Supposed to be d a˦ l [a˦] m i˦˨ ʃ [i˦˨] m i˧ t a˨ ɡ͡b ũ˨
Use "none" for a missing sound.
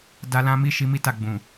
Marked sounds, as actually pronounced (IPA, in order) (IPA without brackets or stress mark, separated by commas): ã˦, i˨˦